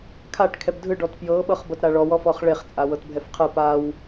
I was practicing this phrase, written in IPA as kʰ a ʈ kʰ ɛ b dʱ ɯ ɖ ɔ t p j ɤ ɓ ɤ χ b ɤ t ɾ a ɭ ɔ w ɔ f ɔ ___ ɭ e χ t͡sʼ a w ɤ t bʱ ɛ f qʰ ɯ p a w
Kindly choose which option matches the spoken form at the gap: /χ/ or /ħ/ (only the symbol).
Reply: χ